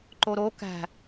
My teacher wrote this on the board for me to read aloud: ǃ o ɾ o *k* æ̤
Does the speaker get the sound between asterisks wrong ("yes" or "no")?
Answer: no